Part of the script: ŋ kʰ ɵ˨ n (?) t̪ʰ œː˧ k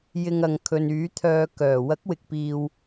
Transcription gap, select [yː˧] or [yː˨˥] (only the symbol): yː˨˥